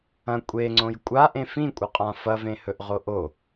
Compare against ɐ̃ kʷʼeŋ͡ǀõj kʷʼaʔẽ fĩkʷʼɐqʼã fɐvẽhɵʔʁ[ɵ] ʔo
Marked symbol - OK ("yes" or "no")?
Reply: no